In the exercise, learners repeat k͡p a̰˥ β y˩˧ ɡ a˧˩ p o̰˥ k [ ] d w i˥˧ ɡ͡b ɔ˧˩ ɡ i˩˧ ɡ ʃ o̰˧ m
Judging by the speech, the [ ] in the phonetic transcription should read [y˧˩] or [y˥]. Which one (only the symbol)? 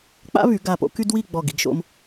y˥